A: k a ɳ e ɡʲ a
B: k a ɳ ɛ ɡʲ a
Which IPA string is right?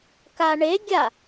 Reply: A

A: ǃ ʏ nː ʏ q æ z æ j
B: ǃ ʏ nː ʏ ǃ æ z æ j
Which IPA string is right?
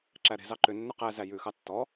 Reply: A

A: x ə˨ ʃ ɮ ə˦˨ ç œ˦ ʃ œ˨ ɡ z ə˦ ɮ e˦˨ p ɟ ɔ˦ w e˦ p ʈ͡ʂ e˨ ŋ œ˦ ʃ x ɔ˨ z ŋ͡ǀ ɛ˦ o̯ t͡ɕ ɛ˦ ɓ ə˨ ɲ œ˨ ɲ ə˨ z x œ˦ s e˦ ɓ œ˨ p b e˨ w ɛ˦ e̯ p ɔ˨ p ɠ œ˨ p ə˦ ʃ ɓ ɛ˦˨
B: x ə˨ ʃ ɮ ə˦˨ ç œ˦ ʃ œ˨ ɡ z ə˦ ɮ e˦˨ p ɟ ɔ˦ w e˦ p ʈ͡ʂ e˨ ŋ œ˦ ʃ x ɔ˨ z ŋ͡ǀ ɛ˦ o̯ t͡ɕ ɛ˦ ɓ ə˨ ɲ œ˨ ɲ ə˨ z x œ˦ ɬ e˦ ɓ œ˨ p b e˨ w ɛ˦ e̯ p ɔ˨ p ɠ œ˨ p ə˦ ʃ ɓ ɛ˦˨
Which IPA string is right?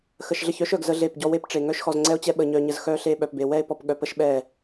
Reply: B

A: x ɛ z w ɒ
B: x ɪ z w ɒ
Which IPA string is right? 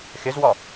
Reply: B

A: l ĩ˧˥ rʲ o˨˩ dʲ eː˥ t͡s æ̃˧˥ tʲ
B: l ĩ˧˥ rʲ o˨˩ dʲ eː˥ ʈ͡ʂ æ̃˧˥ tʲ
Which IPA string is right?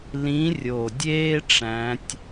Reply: B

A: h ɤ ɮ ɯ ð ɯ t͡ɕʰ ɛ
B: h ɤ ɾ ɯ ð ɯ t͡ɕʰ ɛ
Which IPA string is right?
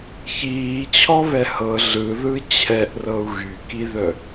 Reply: A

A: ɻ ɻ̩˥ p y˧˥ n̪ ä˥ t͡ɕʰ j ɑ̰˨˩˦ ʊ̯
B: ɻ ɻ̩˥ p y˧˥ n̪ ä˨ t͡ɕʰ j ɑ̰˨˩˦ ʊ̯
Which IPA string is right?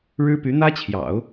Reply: A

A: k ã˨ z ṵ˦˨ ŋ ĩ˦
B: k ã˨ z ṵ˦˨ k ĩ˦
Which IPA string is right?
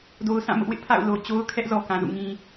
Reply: A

